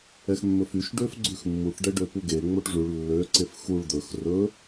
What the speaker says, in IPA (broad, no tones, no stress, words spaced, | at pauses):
ɛxmːɵfyʃ ɖøfɡ͡ǀʉxmːuʈ ɖɛɖøpuɡe ŋ͡moʈʐʉɭ lːø ǀefxuɭ d̪ɵx rɵ